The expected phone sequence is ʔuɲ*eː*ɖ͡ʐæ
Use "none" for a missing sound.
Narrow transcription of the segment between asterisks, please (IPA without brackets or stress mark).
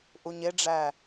e